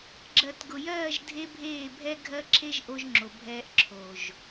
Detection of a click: present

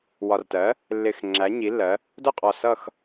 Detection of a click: present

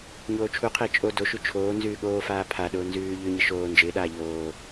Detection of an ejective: present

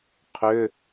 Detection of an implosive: absent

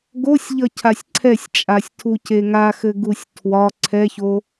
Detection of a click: present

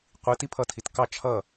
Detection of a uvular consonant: present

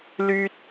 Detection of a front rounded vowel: present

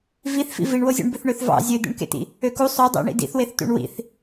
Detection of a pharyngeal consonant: absent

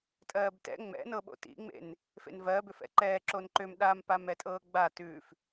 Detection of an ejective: present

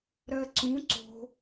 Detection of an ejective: absent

